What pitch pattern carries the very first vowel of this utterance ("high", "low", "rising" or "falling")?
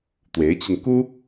rising